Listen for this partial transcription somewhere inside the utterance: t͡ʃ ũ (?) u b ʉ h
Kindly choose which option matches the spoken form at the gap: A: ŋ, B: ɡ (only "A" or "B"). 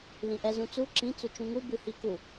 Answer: A